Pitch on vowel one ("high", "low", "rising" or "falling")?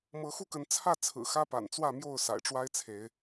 rising